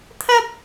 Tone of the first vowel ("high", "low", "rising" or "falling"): high